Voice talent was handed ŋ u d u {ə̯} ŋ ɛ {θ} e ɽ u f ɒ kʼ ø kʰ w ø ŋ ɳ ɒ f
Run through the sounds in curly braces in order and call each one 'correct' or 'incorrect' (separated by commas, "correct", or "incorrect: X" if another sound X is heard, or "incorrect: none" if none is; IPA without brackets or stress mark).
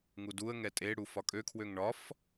correct, incorrect: tʼ